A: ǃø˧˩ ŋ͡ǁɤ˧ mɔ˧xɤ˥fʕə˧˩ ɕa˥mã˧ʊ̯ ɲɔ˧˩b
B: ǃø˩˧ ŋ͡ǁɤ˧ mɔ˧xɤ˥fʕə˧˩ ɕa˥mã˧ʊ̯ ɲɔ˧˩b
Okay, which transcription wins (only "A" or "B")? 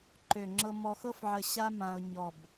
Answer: A